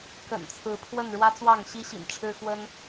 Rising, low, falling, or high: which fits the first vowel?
low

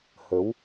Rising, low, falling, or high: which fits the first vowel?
rising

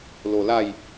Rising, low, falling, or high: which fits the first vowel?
low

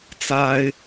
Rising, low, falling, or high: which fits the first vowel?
high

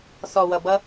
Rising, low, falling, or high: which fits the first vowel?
low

